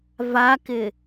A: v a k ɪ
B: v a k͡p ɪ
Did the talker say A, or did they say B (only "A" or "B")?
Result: A